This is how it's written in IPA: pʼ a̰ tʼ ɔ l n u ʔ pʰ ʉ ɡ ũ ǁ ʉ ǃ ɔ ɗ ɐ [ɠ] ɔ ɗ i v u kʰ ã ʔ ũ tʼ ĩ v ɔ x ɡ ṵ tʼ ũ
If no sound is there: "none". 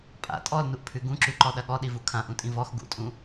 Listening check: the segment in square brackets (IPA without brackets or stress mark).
ɠ